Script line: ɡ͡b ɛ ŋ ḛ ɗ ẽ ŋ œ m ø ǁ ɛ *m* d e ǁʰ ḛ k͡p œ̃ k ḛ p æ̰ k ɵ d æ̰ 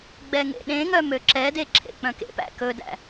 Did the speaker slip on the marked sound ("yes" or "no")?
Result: yes